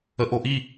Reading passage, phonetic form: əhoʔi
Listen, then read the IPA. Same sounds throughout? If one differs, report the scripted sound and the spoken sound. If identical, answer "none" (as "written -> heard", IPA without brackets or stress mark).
h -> ʔ